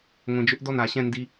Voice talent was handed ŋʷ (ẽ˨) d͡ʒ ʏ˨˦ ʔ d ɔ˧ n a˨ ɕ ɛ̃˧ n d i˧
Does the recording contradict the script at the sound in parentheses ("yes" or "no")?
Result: no